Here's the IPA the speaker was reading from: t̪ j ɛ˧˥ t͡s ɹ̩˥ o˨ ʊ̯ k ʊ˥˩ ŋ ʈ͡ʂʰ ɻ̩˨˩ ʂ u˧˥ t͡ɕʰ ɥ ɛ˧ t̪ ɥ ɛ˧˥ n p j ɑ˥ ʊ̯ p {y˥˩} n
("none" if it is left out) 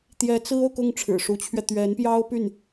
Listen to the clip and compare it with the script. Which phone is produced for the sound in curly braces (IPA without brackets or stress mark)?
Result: y˥˩